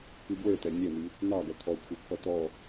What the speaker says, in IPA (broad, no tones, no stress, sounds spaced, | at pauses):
p i b w ə˞ t̪ ɛ nʲ ɛ m i | n ɑ ɡ ʌ t̪ʰ ɔ kʷʰ ɛ pː ʌ t̪ ɔ